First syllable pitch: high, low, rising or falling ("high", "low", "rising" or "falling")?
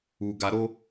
low